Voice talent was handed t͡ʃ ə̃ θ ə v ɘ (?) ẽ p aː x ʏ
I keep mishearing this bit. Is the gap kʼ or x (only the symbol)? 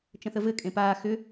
kʼ